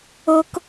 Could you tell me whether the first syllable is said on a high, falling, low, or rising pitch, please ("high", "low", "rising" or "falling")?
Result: high